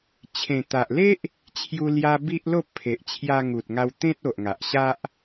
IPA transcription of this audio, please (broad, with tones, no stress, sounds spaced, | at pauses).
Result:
t͡ɕʰ ẽ˨˩ t̪ a˨ ʔ l e˦ ʔ | t͡ɕʰ j u˧ l j a˧ b i˦ ʔ l o˥˧ pʰ e˨ ʔ t͡ɕʰ j a˧ ŋ u˨ t̚ ŋ a˧ w t̪ ẽ˦ t̚ o˨ ʔ ŋ a˨ ʔ ɕ a˦ ʔ